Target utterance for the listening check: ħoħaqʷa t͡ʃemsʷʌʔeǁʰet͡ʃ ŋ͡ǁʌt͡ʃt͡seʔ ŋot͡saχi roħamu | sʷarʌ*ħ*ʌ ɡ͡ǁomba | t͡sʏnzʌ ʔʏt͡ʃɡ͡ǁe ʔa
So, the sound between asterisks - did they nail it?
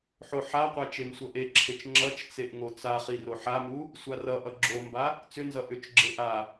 no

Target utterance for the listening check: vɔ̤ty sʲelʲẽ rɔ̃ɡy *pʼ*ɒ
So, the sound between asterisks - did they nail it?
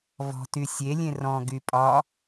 yes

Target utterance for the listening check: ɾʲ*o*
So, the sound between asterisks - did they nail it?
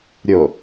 yes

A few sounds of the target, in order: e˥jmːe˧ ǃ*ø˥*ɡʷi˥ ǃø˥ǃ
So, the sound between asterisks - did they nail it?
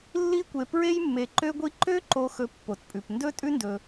yes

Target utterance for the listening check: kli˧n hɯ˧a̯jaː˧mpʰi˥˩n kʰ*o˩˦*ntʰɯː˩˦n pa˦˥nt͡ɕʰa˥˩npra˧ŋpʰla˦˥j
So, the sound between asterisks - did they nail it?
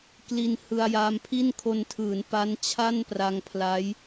no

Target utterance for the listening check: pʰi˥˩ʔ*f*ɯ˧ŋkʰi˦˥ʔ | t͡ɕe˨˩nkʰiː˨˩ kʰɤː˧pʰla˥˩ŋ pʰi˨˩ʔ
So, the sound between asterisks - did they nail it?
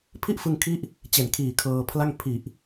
yes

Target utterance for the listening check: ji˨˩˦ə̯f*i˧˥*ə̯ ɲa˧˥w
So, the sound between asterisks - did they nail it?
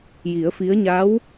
yes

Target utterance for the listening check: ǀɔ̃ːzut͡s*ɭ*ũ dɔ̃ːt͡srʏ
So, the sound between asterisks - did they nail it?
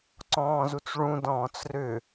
yes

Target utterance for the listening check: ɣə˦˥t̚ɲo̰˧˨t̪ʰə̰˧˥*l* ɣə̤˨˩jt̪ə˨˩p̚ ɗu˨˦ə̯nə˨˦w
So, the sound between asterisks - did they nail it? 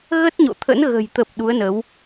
no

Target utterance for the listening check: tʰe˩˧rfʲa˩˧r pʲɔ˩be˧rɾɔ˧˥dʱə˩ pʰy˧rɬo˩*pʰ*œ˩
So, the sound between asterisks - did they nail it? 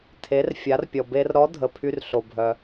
no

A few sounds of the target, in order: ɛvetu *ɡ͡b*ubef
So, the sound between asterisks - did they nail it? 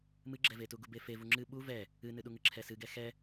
no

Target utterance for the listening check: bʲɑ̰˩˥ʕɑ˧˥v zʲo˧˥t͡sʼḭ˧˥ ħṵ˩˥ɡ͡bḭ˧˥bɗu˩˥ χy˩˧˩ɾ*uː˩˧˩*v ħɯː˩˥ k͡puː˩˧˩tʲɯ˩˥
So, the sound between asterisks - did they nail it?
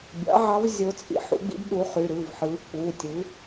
no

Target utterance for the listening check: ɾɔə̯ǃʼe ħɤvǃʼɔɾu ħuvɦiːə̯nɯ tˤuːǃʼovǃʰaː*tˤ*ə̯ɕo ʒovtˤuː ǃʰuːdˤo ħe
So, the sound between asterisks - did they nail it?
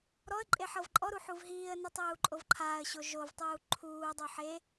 no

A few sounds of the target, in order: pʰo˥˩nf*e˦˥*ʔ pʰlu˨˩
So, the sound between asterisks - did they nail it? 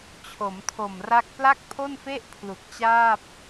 no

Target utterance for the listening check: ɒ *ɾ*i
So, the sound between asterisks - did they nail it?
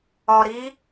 yes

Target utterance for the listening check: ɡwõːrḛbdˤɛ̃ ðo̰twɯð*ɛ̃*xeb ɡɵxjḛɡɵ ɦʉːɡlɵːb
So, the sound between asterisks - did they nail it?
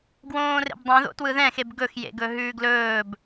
yes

